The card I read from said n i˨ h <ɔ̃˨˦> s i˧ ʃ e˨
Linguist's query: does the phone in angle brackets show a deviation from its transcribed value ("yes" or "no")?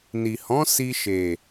no